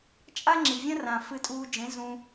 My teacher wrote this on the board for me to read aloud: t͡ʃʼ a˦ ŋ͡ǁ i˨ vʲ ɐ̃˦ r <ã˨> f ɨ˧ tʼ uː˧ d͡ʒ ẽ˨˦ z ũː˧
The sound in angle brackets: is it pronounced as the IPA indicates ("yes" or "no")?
yes